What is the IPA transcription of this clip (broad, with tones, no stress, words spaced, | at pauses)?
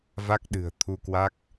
va˦˥k̚ɗɨ̤˨˩ə̯t̪ʰu˧kwa˦˥k̚